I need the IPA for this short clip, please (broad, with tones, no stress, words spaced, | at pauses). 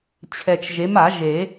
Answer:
t͡ɕʰɛ˨t͡ʃʒe˨˥m a˨˩˦ʒe˨˩˦